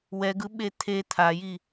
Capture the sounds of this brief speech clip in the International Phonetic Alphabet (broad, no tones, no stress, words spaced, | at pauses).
wɛɡɯ ɓet̪ʰe t̪ʰaji